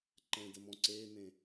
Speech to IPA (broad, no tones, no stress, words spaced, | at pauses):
ǃɛ̃dəmɔ̃ ǀeːnẽ